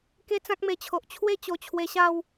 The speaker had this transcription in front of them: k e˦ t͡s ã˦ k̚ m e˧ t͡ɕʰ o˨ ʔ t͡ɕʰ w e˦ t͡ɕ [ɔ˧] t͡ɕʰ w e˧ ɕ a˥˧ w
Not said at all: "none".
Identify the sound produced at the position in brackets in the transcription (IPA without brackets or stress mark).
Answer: o˧